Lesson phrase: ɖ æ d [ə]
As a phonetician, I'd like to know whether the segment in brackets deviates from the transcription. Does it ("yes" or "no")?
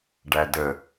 no